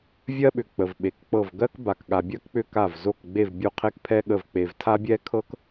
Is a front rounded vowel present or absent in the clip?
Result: present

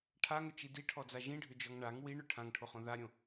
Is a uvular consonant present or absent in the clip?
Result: present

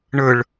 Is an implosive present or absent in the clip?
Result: absent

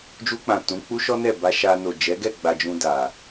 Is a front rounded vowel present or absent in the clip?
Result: absent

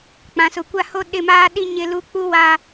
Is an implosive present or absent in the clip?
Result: present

